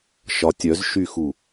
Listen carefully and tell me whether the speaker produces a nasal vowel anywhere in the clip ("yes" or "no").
no